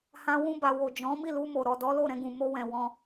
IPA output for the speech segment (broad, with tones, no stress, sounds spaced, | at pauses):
h ã˧ w ũ˧ b a˨ w o˨ d͡ʒ ɔ̃˨˦ m i˦˨ l u˧ m o˨ ɾ ɔ˨ d ɔ˨˦ l o˦˨ ɾ ɛ̃˧ ɡ ũ˨ m o˧ w ɛ̃˨ w ɔ̃˧